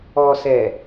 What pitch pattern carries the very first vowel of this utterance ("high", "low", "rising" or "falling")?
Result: low